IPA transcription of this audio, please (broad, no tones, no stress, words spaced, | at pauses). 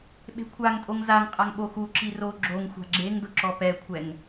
ɓe̤kʷʰaŋtʼoŋ zaŋqʼaŋ ɓoxuǁi ro ɡ͡ǁoŋ xʷa̤ɡ͡ǁeŋdʊ ǁɔpɛkʷʰɛŋ